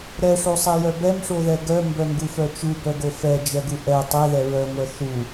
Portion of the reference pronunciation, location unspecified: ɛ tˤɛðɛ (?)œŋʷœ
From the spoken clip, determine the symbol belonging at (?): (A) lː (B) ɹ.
B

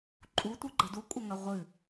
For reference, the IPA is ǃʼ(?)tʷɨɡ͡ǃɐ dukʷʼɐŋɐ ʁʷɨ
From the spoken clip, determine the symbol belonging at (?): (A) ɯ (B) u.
B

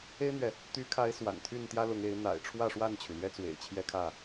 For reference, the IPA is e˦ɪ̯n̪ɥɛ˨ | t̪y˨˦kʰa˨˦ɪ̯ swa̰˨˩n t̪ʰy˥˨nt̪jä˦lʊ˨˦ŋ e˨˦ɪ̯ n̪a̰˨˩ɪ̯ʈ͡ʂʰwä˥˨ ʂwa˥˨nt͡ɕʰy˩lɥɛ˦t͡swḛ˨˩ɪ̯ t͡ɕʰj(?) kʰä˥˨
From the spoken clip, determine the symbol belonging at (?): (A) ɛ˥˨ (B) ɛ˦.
B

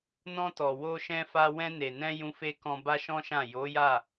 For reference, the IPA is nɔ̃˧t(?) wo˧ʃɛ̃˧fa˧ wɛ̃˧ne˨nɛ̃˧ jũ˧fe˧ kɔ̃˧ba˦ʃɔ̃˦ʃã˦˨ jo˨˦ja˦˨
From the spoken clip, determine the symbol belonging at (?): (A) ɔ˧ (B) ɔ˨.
B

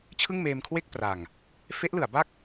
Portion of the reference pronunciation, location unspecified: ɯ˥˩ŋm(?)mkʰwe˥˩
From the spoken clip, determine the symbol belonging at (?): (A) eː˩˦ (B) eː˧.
B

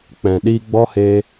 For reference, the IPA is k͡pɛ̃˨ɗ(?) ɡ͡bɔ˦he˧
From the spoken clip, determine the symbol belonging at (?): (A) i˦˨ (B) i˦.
B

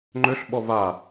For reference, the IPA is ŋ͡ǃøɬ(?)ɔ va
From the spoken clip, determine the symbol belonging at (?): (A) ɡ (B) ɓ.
B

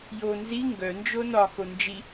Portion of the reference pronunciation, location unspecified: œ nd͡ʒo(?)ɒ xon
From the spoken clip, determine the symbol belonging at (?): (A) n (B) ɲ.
A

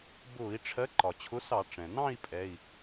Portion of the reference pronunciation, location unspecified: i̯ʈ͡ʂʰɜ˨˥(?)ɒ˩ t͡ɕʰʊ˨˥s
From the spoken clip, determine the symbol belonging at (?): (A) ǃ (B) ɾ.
A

